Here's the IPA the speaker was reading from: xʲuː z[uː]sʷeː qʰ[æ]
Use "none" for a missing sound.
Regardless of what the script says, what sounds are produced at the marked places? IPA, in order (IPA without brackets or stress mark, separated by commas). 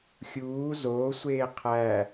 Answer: oː, æ